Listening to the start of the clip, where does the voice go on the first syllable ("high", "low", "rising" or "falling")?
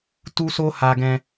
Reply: high